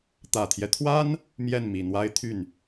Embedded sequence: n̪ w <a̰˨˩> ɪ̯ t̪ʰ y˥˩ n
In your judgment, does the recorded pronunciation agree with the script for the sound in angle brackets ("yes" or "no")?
no